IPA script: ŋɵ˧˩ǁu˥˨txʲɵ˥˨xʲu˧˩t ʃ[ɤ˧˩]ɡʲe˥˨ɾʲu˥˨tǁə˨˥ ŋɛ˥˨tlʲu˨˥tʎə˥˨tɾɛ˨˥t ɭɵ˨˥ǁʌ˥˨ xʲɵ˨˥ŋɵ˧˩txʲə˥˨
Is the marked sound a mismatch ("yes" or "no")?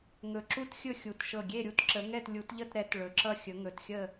no